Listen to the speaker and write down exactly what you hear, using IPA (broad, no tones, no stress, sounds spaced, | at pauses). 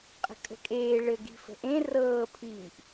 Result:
qʼ ə̤ kʼ ə̤ kʼ eː ɭ ɘ ɡ i̤ f ə̤ ʔ ẽ r ɤː pʰ iː ʔ